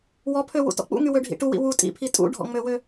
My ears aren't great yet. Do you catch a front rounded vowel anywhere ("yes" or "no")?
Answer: yes